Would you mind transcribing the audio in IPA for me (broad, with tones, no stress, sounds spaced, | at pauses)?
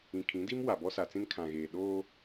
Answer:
ĩ˨ kʰ ĩ˨˦ d i˦ m w a˨ b ɔ˦ s a˨ t͡s ĩ˦ n kʰ ã˨ ɣ eː˨ ɗ oː˦